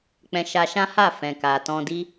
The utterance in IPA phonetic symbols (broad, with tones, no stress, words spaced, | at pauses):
k͡pɛ̃˧ ʃa˧ ʃã˦ha˦˨ fɛ̃˨ka˨tɔ̃˧ di˦